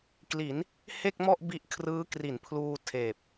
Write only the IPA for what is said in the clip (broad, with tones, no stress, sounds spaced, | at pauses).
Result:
k l i˩˦ n | h e˥˩ k̚ m ɔ˥˩ ʔ b i˦˥ ʔ kʰ r ɯː˦˥ k r i˩˦ n pʰ l uː˧ tʰ eː˨˩ p̚